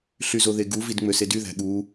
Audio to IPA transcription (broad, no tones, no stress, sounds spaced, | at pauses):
ɬ y z o ð e ɡ u v i d ŋ͡m ø s e d y ð æ̤ ɠ u